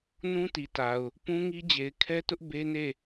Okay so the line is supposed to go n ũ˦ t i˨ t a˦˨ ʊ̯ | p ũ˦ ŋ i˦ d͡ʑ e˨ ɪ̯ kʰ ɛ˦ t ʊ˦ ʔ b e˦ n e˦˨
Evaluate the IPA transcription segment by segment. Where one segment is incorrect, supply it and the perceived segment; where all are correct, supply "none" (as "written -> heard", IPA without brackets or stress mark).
a˦˨ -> a˨